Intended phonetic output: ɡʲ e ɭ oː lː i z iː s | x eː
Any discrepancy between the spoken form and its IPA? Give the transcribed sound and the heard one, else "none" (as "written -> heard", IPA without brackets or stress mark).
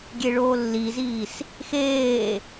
none